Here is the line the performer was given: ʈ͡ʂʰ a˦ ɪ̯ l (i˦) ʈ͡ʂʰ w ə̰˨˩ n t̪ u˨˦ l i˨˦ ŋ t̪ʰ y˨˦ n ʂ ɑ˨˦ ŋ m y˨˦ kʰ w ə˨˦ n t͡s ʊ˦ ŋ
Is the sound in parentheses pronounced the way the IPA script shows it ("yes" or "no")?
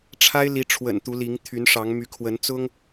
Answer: no